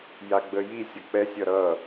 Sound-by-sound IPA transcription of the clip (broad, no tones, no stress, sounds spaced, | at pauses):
j a ɡ͡b ə j i sʲ ʌ k͡p ɛ sʲ ʌ ɾ ʌ